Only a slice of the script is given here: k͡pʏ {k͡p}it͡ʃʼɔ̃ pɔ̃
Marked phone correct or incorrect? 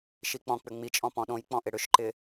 incorrect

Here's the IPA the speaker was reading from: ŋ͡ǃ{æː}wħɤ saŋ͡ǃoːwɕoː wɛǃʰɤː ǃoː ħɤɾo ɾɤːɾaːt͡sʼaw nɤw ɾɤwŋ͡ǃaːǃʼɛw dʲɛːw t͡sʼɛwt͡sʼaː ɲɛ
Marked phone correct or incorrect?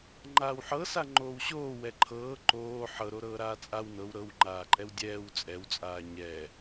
incorrect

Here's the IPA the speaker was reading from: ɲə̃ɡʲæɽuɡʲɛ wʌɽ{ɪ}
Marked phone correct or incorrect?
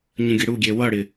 correct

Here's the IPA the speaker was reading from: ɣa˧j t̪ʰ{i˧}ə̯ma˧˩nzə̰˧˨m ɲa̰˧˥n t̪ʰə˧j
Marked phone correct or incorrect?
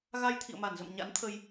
incorrect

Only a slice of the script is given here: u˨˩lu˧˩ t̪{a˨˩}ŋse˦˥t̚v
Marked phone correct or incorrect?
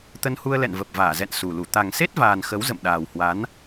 correct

